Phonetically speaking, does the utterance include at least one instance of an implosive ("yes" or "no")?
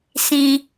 no